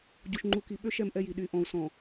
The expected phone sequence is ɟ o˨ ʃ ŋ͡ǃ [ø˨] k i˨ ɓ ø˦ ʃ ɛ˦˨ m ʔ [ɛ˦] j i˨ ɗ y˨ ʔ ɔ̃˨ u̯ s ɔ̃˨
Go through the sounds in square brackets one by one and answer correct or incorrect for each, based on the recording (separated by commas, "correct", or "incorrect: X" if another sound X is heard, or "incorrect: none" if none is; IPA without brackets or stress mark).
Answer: incorrect: u˨, correct